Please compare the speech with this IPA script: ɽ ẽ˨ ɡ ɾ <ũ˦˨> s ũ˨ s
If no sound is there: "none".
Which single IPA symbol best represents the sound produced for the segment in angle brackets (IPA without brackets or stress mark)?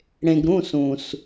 ũ˦˨